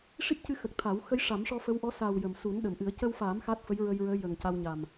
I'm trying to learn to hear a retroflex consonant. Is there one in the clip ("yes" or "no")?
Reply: yes